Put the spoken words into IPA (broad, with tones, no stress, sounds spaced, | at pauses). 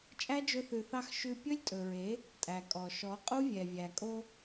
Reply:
t͡ʃʼ æ˦ d͡ʒ ɵ˧ θ ʉ˨ θ ɑ˧ x ʃ ʉ˧ pʲ ɵ˦ lʲ tʼ ɵ˨ ɹ e˨˦ | tʼ æ˨ kʼ ɔ˨ ʃ ɔ˨˦ qʼ u˦ vʲ ɛ˨ vʲ æ˨ kʼ o˧